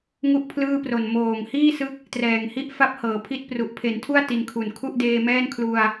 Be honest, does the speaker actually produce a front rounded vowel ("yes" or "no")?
no